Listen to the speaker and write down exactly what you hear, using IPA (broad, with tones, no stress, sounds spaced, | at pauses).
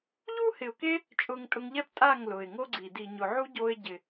ʎ u˦ h ɪ˨ ʊ̯ k e˦ | t͡ʃʼ ʊ˧ ŋ tʼ ʊ˧ ŋ ʎ ɛ˦ p tʼ a˦˨ ŋ l ʊ˨ ɪ̯ ŋ o˦ ɡ͡ǀ i˨ d i˨ ɲ ʊ˨ ʕ u˦ ɟ o˧ ɪ̯ ɟ ɪ˨